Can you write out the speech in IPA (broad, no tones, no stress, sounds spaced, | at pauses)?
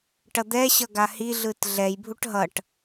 ʈ ʌ d̪ ɛ ɕ ʌ ɡ a h i ɮ ɯ t ɮ ɛ j bʱ u ʈ ɦ ʌ ʈ